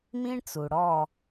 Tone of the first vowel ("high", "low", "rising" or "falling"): high